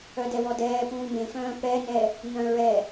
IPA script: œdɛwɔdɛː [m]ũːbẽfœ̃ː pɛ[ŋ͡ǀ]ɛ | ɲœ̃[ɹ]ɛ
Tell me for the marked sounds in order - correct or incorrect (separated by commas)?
incorrect, incorrect, correct